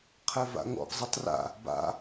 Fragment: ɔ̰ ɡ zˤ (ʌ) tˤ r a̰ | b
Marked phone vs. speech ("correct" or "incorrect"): correct